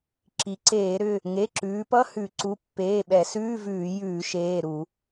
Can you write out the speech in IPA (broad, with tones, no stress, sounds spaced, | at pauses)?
ǁ i˩˧ ǀ eː˧˩˧ ɾ ʏ˩˧˩ | ŋ e˩˧˩ ǁ ʉː˩˧ p ʌ˧˥˧ h ʉ˧˩˧ ǀ u˩˧˩ pː eː˩˧˩ ɓ ɛ˧˩˧ s ʉː˧˥˧ v ʉː˧˩˧ j ʉː˧˩˧ ʃ eː˩˧˩ ɾ u˧˩˧